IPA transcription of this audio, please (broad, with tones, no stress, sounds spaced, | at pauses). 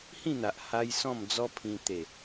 h ĩ˥˧ n̪ a˨ ʔ h a˧ j s ɔ̃˥˧ m d͡z ɔ˦ pʰ ĩ˧ t̪ e˨˩